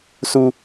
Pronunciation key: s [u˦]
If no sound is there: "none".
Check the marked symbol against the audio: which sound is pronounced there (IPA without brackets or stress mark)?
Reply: u˦